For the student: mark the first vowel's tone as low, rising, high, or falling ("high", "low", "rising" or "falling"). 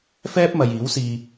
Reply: high